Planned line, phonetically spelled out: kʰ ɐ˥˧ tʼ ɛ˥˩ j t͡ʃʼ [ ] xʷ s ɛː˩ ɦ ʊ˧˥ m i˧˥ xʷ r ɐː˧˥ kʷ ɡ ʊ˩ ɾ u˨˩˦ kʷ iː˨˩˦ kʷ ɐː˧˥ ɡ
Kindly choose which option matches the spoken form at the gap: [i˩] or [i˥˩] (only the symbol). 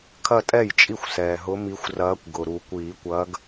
i˥˩